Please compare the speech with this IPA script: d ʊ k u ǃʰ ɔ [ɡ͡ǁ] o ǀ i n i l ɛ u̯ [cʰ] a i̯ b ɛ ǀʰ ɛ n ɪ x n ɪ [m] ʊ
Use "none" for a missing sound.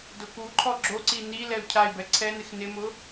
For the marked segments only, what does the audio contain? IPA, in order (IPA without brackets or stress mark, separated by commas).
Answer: ɡ͡ǁ, cʰ, m